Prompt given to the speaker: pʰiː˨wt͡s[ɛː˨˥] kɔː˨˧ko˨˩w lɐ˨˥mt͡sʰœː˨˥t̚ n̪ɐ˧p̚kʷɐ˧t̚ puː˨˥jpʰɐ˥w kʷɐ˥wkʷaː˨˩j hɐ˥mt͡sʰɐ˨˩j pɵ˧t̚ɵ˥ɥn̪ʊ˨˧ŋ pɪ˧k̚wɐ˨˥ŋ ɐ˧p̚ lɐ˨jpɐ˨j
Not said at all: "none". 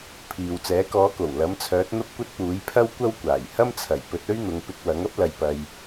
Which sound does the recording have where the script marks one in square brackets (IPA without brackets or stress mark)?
ɛː˨˥